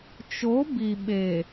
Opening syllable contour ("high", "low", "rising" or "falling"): rising